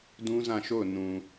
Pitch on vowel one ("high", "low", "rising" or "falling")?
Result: high